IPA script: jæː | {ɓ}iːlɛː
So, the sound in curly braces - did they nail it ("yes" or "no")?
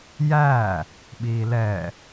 yes